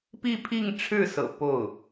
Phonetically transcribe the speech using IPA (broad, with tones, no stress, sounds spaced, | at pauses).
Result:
p i˥˧ pʰ i˥˧ ŋ ʈ͡ʂʰ ɻ̩˥˩ s ɤ̰˨˩ p o˥˩ ʊ̯